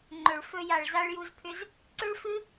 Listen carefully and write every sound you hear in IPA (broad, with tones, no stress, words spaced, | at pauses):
ŋ͡ǃɵ˨ɭ fɵ˧ja˨ɭ za˧ɭju˧zpʰʏ˧z | ǀʏ˦ɭfɨ˦